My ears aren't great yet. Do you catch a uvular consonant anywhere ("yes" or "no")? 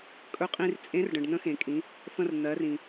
yes